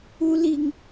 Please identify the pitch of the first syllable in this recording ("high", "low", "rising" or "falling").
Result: high